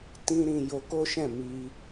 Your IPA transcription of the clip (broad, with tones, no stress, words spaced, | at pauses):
tĩ˧ ɾĩ˨ jo˧ko˦ʃɛ̃˦˨ mi˧